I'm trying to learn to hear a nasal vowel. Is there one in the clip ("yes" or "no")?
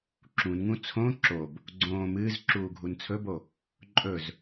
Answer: yes